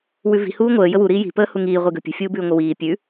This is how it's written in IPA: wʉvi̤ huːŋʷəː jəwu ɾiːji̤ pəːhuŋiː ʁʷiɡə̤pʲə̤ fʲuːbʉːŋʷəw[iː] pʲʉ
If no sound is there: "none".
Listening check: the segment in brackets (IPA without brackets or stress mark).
iː